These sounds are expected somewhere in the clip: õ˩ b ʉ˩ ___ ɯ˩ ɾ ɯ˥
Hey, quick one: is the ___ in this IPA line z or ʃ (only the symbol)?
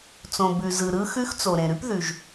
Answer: z